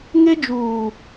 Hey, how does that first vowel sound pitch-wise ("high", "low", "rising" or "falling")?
high